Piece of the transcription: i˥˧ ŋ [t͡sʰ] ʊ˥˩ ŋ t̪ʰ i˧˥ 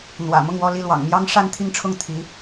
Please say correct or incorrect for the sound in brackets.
incorrect